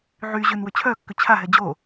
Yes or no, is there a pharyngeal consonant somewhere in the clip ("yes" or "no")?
yes